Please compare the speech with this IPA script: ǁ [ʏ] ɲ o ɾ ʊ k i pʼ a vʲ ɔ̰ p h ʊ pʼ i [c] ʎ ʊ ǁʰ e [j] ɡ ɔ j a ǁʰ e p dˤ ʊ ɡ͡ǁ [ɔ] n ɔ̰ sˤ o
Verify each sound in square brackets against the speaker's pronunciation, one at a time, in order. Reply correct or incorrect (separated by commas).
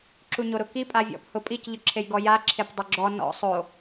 incorrect, correct, correct, correct